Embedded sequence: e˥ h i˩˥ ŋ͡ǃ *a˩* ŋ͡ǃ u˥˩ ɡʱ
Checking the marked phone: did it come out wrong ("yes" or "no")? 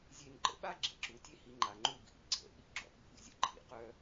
no